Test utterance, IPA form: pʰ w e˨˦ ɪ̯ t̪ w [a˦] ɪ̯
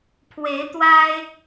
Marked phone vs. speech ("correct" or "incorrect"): correct